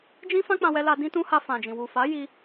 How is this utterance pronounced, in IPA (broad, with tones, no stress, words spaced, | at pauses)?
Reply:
d͡ʒĩ˦ fã˦k͡pã˧wɛ˧la˧ dĩ˧tũ˧ ha˧fã˨d͡ʒĩ˨ wu˨fa˨˦ ji˧